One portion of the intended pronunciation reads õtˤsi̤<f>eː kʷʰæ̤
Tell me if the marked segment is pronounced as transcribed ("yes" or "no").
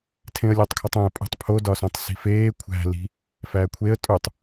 yes